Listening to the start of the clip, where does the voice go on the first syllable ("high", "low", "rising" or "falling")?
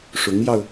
rising